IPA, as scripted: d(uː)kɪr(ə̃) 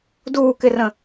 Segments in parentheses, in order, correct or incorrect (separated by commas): correct, correct